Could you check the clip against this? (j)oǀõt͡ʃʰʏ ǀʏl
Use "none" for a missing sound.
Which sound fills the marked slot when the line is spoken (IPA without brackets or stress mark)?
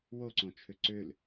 w